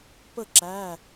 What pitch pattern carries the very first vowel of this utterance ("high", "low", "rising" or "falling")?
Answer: falling